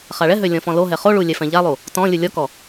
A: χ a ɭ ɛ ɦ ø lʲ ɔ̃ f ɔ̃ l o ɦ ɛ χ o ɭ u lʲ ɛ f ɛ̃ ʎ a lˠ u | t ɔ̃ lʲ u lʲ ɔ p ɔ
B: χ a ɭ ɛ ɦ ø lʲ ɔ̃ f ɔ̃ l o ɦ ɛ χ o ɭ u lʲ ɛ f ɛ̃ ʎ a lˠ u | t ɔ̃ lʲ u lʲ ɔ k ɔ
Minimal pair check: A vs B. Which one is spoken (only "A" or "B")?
B